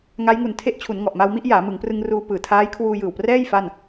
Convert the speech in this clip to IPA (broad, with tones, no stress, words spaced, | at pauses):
ŋa˦˥jŋu˨˩n tʰe˦˥ʔt͡ɕʰu˩˦n ŋɔ˨˩ʔma˧wmi˥˩ʔ jaː˩˦mɯ˩˦ŋ prɯ˧ŋruː˧ pɯː˨˩tʰaː˦˥j kʰwuː˧jɯː˨˩wprɛː˥˩j fa˥˩n